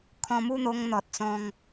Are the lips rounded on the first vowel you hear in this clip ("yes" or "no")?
yes